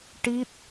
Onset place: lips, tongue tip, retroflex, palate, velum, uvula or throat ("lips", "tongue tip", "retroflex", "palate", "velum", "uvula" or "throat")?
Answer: retroflex